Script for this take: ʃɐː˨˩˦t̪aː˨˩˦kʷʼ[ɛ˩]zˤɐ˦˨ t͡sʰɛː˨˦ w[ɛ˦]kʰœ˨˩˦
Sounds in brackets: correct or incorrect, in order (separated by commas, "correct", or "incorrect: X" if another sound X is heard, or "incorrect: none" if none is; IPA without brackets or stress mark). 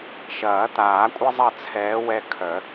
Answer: incorrect: ɛ˦, correct